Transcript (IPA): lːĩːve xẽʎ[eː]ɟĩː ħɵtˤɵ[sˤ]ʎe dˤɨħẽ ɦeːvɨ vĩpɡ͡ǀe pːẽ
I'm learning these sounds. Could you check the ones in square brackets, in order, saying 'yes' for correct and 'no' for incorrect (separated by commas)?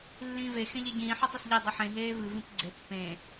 no, no